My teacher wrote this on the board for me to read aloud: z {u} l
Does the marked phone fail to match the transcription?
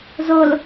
yes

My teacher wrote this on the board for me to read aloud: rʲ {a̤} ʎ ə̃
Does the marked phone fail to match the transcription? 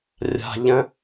no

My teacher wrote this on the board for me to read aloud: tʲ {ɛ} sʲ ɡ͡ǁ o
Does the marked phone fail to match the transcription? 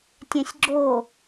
yes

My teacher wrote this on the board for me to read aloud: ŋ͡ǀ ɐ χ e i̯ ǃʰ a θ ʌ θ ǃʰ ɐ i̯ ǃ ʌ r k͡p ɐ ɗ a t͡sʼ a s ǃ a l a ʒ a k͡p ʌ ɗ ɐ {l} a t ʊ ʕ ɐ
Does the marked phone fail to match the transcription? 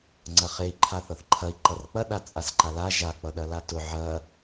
no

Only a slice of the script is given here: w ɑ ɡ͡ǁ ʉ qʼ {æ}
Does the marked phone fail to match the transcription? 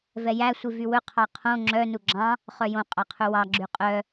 yes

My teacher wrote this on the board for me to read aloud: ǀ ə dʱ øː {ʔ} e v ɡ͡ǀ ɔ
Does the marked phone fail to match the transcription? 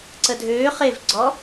yes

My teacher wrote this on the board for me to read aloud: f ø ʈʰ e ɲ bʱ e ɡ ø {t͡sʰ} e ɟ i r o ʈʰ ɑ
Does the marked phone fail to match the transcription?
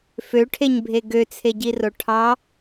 no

